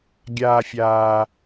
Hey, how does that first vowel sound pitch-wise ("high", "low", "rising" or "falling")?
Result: low